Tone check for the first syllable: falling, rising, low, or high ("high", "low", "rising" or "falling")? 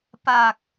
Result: low